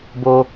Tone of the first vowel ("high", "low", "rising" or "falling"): high